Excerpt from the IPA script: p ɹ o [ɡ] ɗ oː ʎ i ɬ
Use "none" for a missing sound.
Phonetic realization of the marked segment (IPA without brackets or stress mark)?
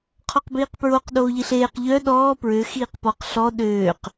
q